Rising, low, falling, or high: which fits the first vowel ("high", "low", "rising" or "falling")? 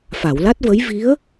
low